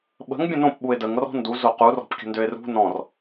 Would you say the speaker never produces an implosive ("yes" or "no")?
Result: no